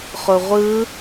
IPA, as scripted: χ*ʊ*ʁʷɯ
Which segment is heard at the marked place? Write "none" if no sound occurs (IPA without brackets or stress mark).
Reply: ʊ